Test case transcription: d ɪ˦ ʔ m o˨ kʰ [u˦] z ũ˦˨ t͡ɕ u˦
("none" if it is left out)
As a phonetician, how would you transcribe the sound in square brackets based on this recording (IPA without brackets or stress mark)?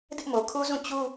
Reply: u˦